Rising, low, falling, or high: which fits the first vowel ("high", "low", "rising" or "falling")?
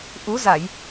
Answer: rising